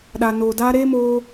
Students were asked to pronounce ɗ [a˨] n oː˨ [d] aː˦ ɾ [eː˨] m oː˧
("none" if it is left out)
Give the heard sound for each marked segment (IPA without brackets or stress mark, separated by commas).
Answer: a˨, d, eː˦